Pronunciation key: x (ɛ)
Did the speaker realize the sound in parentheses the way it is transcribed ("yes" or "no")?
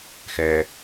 yes